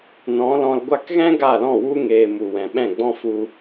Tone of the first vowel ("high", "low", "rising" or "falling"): rising